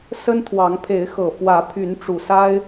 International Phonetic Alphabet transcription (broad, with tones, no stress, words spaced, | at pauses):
sə˦nt̪ʰwɑ˨˦ŋ pʰe˨˦ɪ̯xɤ˨˩ fwä˨˦pʰy˨˦n ʈ͡ʂu˨˩sa˦ɪ̯